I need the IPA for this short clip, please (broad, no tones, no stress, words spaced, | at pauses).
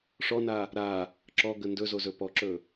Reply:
ʂɔna | ɾa | ǁɔɡə ndɵzozɵ pɔǁɵ